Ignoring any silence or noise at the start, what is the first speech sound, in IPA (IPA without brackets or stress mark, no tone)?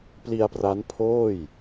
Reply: p